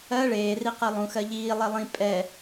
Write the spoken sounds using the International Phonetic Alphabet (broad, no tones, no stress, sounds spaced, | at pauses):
ɜ ɭ eː r i q ɜ lˠ ũ x ɜ ʎ iː lˠ e lˠ ĩ pʼ ɛ